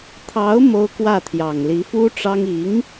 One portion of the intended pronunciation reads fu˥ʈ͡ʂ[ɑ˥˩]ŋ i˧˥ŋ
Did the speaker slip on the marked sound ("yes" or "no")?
yes